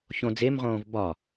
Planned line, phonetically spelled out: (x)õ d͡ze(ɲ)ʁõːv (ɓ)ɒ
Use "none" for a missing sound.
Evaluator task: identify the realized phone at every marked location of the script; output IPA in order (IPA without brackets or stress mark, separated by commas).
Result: ç, m, b